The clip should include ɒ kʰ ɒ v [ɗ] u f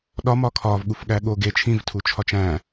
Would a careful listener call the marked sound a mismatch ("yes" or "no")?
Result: yes